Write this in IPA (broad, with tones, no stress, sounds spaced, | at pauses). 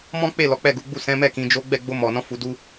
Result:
m ɔ̃˦ k͡p e˦˨ l ɔ˨˦ k͡p ɛ˦˨ ɡ u˨˦ ɡ͡b u˦˨ s ɛ̃˨˦ m ɛ˦˨ k ĩ˨˦ d͡ʒ o˦ ɡ͡b ɛ˦˨ ɡ͡b o˧ m ɔ˨ n ɔ̃˨˦ f u˧ d u˦